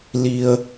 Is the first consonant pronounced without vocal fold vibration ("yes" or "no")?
no